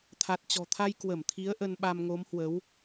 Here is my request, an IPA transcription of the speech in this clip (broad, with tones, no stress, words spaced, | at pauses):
t̪ʰa˨˩t̚t͡ɕɔ̤˨˩t̪ʰa˧j kwə˧˩mt̪ʰi˨˦ə̯ ʔə˧nɓa˧m ŋo˨˦mhwə˨˦w